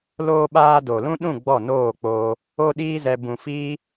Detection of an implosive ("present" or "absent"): present